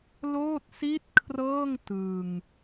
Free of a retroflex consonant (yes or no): yes